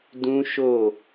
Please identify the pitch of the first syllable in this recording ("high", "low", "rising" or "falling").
high